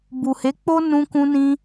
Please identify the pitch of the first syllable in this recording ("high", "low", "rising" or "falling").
low